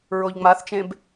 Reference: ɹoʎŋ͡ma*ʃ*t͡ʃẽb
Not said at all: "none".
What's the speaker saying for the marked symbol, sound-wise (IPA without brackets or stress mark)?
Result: θ